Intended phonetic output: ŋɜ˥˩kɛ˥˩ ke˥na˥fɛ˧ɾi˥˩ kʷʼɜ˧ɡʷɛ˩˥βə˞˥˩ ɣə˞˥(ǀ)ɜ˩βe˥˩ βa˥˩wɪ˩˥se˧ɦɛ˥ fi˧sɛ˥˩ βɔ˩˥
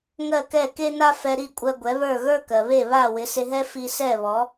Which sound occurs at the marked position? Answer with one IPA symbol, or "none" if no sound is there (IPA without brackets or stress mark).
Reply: k